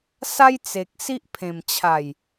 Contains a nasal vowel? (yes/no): yes